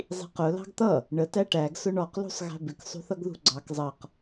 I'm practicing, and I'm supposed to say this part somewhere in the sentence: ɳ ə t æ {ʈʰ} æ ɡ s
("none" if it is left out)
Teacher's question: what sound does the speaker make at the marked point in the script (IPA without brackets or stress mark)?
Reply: ʈ